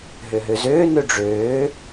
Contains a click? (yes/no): no